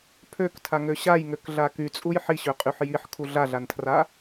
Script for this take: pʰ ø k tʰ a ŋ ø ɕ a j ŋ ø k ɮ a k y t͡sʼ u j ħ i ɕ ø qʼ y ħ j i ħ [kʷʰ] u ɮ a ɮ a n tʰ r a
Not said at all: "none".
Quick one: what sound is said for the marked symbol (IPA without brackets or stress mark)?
kʰ